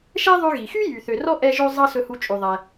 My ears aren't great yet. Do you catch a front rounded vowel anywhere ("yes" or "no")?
yes